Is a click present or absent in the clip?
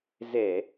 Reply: absent